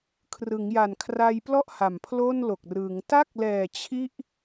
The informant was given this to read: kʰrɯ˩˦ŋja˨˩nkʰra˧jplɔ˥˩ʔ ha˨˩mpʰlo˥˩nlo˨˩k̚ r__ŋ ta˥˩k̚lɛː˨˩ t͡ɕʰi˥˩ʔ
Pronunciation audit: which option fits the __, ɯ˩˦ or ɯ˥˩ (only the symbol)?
ɯ˩˦